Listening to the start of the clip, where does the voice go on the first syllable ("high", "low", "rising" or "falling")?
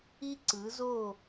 high